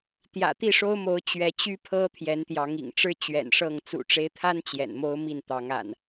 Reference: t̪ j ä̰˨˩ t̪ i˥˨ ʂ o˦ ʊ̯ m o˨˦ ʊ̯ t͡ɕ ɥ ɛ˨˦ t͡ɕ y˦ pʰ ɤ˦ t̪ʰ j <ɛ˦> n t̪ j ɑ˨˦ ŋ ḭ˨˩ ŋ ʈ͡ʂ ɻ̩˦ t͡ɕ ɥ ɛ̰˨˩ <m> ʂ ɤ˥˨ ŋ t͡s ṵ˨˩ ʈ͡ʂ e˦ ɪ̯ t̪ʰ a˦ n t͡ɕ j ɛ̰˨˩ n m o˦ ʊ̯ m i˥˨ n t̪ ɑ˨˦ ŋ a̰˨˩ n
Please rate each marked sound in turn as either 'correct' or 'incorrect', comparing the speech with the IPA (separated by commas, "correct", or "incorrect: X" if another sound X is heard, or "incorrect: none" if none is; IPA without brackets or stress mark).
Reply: incorrect: ɛ˨˦, incorrect: n